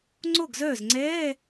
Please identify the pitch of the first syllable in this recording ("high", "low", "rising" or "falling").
falling